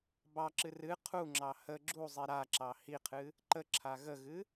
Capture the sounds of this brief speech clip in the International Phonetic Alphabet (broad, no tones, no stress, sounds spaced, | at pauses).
b ɑ ǁ ɨ r ɨ qʰ u ŋ͡ǁ ɑ h ə ɡ͡ǁ u zˤ i ɾ a ǁ ɑ h i qʰ ɨ | ǃ ə ǁʰ a ɣ ə ɣ ɨ